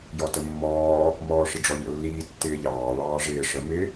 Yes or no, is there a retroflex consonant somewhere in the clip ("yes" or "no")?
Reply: yes